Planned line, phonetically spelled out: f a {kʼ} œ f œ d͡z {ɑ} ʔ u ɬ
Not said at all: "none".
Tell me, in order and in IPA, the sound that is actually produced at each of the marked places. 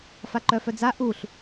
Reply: ǃ, a

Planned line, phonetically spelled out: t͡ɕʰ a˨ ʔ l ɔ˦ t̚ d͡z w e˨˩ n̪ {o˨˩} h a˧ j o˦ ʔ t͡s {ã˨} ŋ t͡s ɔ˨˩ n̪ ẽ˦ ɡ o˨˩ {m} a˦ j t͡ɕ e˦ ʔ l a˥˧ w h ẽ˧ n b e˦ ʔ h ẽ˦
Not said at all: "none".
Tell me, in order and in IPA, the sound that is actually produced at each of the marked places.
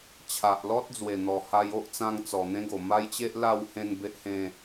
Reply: ɔ˨˩, ã˧, m

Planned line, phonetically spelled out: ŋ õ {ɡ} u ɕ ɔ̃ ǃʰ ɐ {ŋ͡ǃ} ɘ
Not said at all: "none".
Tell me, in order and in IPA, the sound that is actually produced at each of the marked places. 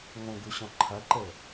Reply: ɡ, ǃ

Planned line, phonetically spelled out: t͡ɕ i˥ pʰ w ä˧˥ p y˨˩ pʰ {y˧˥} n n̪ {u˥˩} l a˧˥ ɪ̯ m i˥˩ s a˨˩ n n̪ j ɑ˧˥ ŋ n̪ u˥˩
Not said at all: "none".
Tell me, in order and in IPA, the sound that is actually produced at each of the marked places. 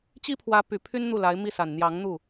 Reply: y˥, u˥˩

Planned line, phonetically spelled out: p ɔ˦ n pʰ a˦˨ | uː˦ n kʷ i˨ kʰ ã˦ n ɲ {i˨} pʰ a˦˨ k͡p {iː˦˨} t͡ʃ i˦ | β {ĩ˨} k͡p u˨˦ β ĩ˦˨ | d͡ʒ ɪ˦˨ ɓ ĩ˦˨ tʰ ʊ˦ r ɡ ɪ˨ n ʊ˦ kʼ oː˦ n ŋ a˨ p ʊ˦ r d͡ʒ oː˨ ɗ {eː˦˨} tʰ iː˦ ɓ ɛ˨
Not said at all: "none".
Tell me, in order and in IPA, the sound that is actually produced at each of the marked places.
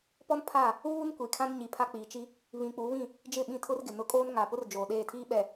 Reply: i˨, iː˨, ĩ˨, eː˦˨

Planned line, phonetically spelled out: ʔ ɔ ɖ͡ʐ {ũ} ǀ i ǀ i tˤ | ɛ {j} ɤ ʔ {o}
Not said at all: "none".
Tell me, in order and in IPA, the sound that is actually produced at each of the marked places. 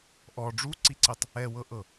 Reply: u, w, ɤ

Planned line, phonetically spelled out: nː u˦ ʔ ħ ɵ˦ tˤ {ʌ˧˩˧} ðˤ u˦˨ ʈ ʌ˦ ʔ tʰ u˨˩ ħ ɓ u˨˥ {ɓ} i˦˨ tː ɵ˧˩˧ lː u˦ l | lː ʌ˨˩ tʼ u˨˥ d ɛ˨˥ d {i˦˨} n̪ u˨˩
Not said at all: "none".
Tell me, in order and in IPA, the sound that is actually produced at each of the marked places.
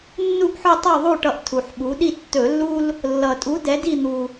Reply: ʌ˦˨, ɗ, i˦˨

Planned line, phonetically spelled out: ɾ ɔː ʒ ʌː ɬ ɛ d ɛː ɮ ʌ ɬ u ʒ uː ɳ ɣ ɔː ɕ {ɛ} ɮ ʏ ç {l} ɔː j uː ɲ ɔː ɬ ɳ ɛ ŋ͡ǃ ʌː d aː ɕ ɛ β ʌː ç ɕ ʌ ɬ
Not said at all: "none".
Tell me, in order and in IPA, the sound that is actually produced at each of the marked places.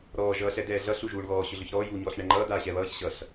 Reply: ʏ, ɾ

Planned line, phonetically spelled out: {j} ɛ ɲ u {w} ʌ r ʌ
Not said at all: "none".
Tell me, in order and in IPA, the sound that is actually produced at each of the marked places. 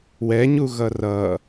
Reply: w, ɣ

